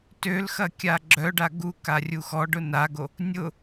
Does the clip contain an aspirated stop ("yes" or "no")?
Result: no